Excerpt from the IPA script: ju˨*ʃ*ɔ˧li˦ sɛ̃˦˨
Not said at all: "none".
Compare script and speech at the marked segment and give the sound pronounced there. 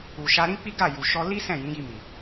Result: ʃ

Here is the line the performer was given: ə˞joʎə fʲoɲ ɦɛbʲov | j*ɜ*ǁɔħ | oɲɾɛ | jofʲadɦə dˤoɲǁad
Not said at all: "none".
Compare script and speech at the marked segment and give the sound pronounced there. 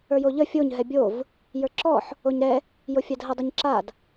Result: ə˞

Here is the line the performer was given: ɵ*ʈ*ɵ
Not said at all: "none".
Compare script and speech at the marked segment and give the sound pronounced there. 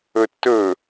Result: tː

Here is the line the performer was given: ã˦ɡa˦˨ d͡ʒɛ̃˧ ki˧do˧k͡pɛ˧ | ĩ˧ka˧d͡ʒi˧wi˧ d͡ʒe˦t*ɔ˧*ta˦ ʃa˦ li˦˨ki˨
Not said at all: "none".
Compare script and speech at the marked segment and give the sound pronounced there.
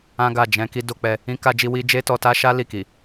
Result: ɔ˧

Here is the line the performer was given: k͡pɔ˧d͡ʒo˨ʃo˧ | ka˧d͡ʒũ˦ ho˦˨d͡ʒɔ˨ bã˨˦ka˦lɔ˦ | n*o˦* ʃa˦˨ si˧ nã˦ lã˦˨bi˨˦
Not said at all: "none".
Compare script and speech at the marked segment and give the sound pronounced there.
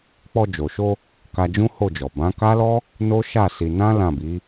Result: o˦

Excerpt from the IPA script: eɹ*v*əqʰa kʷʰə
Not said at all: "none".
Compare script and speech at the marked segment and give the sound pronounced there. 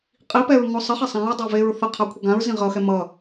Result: θ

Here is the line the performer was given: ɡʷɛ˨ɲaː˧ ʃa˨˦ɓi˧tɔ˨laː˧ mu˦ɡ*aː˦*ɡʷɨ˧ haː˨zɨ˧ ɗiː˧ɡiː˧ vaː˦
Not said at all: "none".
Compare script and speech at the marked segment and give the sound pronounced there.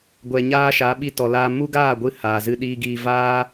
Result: aː˦˨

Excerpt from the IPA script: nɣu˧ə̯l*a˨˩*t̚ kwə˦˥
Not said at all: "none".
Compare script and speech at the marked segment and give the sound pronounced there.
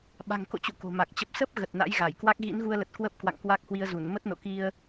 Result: ə˨˩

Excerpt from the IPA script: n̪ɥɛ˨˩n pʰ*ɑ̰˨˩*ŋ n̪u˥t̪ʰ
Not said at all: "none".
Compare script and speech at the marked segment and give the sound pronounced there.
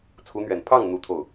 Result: ɑ˥˩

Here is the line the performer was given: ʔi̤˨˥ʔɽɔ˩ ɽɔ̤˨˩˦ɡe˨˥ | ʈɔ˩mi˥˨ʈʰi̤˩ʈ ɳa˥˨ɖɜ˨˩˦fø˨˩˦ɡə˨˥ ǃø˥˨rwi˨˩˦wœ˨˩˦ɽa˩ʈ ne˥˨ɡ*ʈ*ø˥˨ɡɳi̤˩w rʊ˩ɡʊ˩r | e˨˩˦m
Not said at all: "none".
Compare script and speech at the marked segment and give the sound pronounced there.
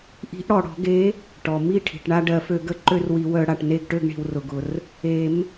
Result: ʈ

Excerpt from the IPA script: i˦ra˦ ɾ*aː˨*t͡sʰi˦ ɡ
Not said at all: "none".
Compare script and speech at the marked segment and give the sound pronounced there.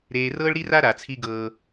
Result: a˨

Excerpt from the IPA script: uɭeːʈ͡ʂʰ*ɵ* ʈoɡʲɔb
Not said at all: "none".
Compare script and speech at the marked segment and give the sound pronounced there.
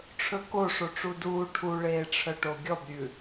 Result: œ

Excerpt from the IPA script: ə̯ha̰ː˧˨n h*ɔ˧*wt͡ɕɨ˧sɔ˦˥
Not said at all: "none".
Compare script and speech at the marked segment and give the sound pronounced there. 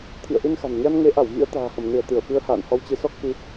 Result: ɔ˧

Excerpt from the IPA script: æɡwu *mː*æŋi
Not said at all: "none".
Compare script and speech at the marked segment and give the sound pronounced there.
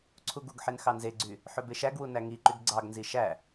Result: n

